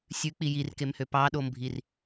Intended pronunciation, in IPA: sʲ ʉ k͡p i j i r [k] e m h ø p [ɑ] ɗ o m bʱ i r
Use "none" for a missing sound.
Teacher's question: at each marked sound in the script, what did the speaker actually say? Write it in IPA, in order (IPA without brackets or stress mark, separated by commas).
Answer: k, ɑ